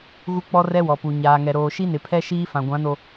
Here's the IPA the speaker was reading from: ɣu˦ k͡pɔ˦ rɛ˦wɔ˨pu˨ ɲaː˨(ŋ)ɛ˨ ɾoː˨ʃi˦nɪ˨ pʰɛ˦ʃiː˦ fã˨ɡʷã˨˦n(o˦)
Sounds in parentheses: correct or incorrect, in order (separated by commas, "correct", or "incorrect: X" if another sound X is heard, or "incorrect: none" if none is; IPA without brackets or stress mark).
correct, incorrect: o˨